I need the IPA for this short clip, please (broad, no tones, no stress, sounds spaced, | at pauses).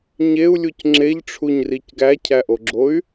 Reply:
ɲ e u̯ lʲ u c ŋ͡ǁ e ʎ ʈ͡ʂʰ u ɲ r i c ɡ æ cʰ æ ʔ o ɡ͡ǁ o y̯